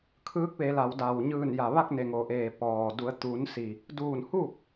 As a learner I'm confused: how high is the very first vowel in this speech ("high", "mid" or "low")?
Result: high